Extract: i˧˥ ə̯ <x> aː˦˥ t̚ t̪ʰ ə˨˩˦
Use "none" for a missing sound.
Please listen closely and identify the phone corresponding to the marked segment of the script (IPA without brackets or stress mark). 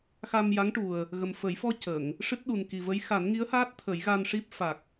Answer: h